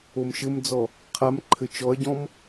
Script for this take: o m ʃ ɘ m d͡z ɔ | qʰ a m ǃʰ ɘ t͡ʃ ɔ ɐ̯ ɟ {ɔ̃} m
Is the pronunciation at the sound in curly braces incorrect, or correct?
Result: correct